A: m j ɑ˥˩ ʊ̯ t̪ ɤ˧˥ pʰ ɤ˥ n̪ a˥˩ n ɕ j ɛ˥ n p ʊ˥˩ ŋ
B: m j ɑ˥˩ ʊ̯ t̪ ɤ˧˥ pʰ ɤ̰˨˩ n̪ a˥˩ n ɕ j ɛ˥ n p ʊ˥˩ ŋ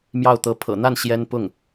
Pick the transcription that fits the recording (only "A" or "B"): B